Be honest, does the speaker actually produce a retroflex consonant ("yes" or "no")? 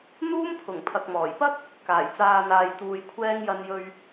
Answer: no